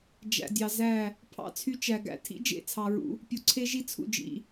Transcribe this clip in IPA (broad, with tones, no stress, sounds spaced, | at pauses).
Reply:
d͡ʒ æ̰˨ dʲ ɑ˨ z æ˦˨ | pʰ ɑ̰˦ t͡sʰ y˦ t͡ʃ æ˨ ɡ æ̰˦ tʰ ḭ˦ d͡ʒ ḛ˦˨ t͡sʰ ɑ˨ ɹ ṵ˦ | pʲ u˨ ǀʰ e˦ ʒ i˦ t͡sʰ ṵ˨ d͡ʒ ḭ˨